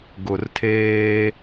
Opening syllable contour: low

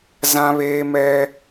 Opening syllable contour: high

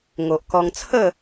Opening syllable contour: low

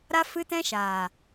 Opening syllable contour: high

